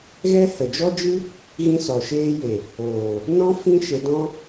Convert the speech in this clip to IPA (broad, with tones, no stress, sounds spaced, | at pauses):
ɣ ɛ˦ h ə˨ d͡ʒ ɔ˦ d͡ʒ ɨ˦ | ɣ ĩ˦ s ɔ˨ ʃ eː˦ j e˨ | oː˨ | n ɔ̃˦ f ĩ˦ ʃ e˧ d ɔ̃˦